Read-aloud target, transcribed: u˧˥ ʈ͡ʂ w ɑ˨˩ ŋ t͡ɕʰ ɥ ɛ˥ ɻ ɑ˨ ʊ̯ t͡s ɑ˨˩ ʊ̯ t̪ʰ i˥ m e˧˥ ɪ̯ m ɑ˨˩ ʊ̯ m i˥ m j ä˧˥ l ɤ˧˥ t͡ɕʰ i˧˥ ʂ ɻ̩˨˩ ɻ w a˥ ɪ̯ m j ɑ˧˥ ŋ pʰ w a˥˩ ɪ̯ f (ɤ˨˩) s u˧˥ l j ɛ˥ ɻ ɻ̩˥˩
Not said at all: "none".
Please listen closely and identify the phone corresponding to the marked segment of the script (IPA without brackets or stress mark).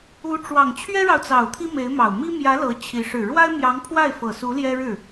ɤ˨˩